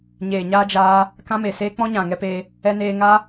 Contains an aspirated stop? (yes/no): no